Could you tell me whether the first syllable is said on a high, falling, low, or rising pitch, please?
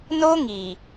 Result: high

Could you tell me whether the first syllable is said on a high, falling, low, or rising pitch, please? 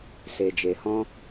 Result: low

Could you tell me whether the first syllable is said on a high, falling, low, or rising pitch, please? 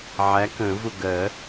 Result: rising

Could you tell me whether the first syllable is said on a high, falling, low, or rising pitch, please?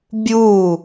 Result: falling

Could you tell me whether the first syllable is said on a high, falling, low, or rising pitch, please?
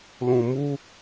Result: low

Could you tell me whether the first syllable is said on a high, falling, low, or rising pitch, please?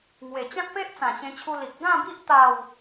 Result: low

